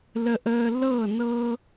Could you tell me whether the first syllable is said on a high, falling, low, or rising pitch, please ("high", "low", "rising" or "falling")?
low